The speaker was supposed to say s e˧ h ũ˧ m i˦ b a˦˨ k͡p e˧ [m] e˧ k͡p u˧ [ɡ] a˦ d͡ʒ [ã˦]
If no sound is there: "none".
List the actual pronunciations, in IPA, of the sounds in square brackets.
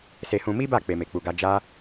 m, ɡ, a˦

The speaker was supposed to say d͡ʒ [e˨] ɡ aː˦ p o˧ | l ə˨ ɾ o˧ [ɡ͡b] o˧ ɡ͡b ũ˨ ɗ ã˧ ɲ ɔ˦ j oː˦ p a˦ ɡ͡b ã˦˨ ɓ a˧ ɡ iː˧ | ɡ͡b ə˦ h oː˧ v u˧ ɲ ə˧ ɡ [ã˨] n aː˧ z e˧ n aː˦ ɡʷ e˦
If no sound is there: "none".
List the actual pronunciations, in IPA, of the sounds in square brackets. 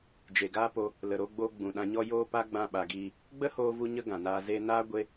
e˨, ɡ͡b, ã˨

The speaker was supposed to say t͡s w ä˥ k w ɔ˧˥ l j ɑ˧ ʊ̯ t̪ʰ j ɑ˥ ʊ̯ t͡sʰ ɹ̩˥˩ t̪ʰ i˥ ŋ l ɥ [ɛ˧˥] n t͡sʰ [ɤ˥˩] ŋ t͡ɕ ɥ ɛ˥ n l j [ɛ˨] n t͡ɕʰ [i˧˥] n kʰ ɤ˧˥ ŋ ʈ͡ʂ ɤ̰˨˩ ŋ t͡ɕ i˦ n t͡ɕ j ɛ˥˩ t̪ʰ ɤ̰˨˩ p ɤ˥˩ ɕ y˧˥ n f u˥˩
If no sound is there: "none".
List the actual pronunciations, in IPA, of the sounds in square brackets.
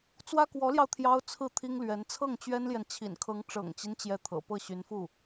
ɛ˧˥, ɤ˥˩, ɛ˨, ḭ˨˩

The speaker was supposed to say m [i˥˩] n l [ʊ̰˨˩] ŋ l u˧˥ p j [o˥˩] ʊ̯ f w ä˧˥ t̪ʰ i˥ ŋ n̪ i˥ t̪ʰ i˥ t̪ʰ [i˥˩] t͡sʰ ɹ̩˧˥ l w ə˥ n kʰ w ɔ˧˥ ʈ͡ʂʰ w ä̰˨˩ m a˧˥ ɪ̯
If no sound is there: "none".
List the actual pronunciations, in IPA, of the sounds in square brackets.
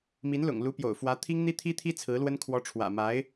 i˧˥, ʊ̰˨˩, o̰˨˩, i˥

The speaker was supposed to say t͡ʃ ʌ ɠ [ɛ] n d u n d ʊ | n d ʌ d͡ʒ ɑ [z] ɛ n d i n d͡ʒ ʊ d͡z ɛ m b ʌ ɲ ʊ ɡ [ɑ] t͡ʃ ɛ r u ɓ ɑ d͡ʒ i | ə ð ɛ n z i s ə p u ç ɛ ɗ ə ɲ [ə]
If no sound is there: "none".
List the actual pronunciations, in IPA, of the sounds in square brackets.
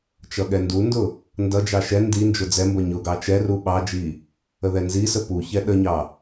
ɛ, ʃ, ɑ, ɑ

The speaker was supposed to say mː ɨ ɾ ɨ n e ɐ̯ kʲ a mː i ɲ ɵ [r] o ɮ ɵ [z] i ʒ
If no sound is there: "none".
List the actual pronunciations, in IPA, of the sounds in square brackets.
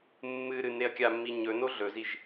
n, z

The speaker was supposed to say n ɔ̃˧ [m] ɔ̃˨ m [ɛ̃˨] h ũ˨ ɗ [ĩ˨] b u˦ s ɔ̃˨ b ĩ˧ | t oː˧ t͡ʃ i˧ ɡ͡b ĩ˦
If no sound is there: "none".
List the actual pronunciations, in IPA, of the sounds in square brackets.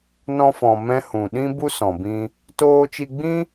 f, ɛ̃˧, ĩ˦

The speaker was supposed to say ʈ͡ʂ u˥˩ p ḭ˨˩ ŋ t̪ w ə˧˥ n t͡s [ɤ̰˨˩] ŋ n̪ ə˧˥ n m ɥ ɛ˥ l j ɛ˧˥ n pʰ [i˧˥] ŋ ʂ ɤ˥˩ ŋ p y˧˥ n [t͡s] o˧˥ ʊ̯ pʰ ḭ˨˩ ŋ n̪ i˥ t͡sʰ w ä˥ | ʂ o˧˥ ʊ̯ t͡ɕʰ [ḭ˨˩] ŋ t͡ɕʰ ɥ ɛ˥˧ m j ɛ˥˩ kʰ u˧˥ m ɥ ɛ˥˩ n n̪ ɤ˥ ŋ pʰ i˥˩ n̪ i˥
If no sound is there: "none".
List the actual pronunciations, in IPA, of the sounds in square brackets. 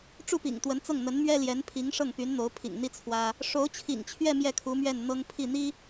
ɤ˥˩, i˧˥, n̪, ḭ˨˩

